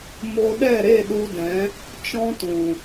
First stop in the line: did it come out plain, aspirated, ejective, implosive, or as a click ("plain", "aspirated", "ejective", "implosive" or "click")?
implosive